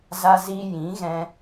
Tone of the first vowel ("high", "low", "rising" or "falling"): high